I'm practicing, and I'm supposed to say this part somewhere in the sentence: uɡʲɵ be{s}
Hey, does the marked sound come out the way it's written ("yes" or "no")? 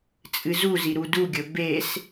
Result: yes